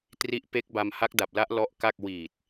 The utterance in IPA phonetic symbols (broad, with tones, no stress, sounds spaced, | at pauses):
t r i˦˥ ʔ p e˦˥ k̚ b a˧ m h a˦˥ k̚ d a˨˩ p̚ l a˦˥ ʔ l ɔ˦˥ ʔ k a˥˩ k̚ w iː˨˩ t̚